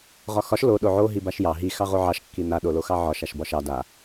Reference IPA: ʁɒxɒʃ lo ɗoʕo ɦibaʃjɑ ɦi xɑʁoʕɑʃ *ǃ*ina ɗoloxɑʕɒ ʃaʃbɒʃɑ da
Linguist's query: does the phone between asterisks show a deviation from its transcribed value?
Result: yes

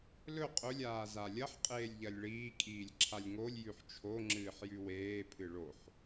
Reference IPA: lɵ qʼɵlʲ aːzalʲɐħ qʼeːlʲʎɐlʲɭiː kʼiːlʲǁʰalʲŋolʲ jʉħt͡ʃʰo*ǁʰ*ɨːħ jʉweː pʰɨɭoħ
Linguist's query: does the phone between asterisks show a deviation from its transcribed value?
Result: yes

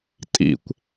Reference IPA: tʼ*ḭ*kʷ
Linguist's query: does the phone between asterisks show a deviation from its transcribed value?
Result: no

